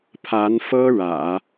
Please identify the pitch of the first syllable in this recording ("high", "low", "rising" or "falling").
rising